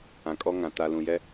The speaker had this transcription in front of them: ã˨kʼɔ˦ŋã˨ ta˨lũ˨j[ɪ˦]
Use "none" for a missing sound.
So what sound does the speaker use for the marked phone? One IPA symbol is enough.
ɛ˦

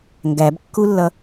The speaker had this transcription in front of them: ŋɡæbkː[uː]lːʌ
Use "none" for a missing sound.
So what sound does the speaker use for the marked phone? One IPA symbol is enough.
u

